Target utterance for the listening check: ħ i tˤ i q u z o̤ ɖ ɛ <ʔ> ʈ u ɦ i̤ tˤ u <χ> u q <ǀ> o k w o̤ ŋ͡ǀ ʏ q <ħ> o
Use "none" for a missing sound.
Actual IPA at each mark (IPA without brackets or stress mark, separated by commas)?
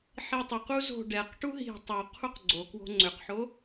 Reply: q, qʰ, ɡ͡ǀ, ħ